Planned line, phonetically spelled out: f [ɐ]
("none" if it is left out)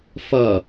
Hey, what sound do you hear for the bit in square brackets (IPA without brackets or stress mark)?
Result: ɐ